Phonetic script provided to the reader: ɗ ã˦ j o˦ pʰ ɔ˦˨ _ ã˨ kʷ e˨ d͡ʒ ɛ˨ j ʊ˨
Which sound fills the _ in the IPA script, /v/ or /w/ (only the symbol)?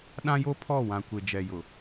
w